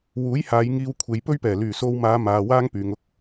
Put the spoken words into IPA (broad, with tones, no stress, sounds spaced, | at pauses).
w uː˨˥ j h aː˨˧ j ŋ iː˧ w kʷʰ e˨˧ j p ɵ˥ ɥ p ɛː˨˩ l yː˨˩ s o˧ w m aː˨˧ m aː˨ w aː˥ ŋ p yː˨ ŋ ʊ˥ k̚